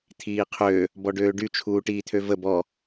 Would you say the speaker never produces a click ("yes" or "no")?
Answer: yes